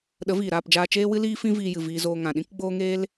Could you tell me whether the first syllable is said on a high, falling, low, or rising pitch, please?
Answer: rising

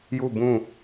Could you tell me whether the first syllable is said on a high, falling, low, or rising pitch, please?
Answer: falling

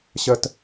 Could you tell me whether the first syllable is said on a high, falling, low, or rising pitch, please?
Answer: high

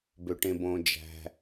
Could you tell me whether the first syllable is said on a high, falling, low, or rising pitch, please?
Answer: low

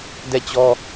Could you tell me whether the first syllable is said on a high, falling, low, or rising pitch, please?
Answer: falling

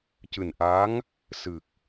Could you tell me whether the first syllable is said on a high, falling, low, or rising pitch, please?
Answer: low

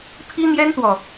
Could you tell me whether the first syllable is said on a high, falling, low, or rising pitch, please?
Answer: high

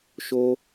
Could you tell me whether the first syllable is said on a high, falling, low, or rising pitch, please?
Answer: high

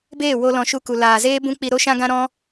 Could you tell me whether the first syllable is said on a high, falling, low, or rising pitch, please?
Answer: falling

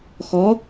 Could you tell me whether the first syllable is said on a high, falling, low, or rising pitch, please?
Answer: rising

